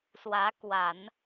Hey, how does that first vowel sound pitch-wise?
rising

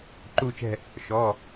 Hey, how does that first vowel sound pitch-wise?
falling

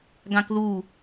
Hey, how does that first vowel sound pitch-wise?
high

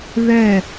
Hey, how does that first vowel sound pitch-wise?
falling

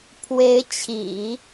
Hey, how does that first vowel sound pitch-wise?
rising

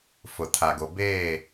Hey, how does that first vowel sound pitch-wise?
low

